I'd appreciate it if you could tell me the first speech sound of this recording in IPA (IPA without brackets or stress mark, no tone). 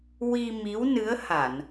w